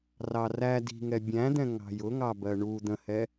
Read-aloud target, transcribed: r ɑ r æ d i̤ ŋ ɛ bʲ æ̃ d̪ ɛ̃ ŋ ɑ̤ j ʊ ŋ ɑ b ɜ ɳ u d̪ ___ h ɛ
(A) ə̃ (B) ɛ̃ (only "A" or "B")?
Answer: A